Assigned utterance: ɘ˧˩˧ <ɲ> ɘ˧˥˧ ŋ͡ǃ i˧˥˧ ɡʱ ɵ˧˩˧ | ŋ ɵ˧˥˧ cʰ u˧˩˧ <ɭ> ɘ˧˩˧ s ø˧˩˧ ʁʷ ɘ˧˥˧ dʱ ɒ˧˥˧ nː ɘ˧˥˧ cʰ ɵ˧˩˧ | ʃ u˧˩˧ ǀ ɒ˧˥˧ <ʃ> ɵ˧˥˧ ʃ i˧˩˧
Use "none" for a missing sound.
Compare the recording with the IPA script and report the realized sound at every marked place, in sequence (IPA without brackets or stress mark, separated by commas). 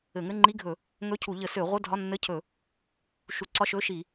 ŋ, ʎ, ʃ